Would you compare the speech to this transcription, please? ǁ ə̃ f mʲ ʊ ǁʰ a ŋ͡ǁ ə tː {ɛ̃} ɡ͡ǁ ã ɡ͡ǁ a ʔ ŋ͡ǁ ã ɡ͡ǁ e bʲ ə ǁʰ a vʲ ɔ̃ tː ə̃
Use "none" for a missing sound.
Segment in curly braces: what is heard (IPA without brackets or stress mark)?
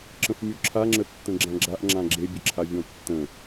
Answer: ə̃